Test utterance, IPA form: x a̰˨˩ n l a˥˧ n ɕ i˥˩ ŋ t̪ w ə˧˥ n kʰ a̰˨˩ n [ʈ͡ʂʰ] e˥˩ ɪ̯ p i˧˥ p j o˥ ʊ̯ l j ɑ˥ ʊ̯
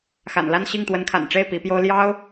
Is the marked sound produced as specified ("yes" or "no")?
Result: no